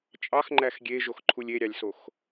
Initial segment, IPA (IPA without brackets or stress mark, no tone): t͡ʃʼ